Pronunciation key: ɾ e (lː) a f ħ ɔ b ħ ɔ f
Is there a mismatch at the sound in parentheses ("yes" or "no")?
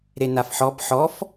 yes